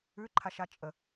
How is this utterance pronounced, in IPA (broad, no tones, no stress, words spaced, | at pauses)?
ʉǃʰaʃa t͡ʃʼə